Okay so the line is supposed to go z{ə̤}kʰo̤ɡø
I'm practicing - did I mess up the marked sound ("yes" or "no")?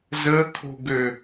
yes